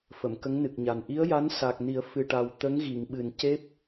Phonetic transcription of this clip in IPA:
f ə˨˩˨ m k ə˧˥ ŋ n ɨ˨˩ k̚ ɲ a˨˩ n ʔ i˧˥ ə̯ j a˧˥ n s a˨˩ k̚ n i˨˩˦ ə̯ f ɨ˨˩ ʈ a˨˩ w t̪ ə˧˥ ŋ ɣ i˨˩˨ ŋ ɓ ɨ˨˩ n c e˦˥ p̚

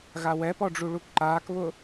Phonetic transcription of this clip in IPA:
ɣ a w ɛ p ɔ ɖ͡ʐ u ɭ u k ǃ aː k β ʊ

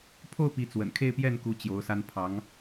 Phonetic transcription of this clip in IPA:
pʰ o˥˩ ʊ̯ p i˧˥ t͡s w ə̰˨˩ n kʰ e˥˧ ɪ̯ p j ɛ˥˩ n k u˧˥ t͡ɕ j o˧˥ ʊ̯ s a˥ n pʰ ɑ˧˥ ŋ

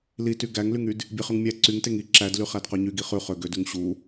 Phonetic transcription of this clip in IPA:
l i t y ɡ æ ŋ l y ŋ y d | bʲ e χ ʉ ŋ mʲ æ ǀ y ŋ t e ŋ i ǁ æ d l y χ æ d q œ ɲ y ɡ i χ ʉ χ ø ɡ ø d ʉ ŋ ɕ u

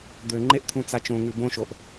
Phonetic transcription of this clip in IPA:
d̪ ø ŋ͡ǃ e ʔ t̪ʰ ũ t͡s a t͡ʃ õ ŋ ʉ b õ ʃ o ʔ

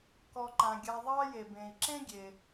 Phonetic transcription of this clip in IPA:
k ɔ˨ ǃ ã˩ ɡʲ a˨ ðˤ ɑ˦ j e˩ b ẽ˩ i̯ ǁ ẽ˥ ɡʲ e˩

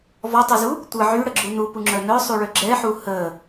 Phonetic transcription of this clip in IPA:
v ɔ tˤ i z u | tʷ ə ʕ y ɽ ə ɡ͡ǁ u n u p u ŋ͡ǁ œ n œ sˤ u ɭ ø ɡ͡ǁ ɛ ħ u h ə

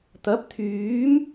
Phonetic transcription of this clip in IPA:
t̪ ɐ˨˥ p̚ t̪ʰ yː˨˥ m

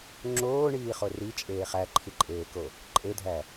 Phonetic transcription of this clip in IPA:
ŋ͡ǁ oː ɳ iː χ o r i t͡ʃʼ eː χ æ ǃʰ i ǃʼ eː k o | ǃʼ e dʱ æ

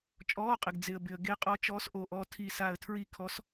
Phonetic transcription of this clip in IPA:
t͡ʃʼ ɔː˧˥˧ qʼ ɪ˨ ɡ d͡z ɪ˨ ə̯ b ɪ˨ ə̯ ɡ e˧˥ qʼ ɔ˧˥ t͡ʃ ɔː˧˥ s ʔ oː˨ ʔ ɔ˦˨ tʰ i˦˨ s a˦˨ ə̯ tʰ ɹ i˦˨ kʰ ɔ˧˥ s

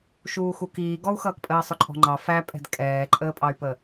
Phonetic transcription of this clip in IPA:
ʃ uː x u k iː ɡ ɔ u̯ x ʌː k pʼ əː sˤ ʊ ǃʼ ɔ̤ ŋ͡ǃ ɑ f æ pʼ ɛ̤ d kʼ ɛː ǃʼ əː pʼ ɑ y̯ p ə

